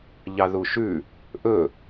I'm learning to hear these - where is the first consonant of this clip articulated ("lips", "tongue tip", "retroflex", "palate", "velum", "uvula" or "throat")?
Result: palate